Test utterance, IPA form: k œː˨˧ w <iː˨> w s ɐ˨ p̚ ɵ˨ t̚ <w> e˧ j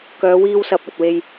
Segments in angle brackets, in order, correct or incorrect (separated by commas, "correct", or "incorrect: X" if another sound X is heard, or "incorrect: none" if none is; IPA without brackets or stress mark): incorrect: iː˧, correct